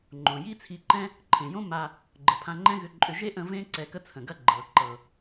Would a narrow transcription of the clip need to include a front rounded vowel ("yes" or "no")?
yes